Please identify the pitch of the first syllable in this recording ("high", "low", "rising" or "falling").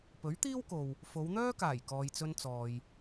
rising